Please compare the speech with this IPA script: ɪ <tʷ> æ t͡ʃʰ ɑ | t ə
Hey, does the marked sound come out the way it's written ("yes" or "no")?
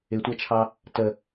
yes